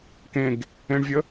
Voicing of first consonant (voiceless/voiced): voiceless